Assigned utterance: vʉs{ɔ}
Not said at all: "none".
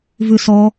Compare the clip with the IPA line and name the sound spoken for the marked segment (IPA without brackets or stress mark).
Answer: ɔ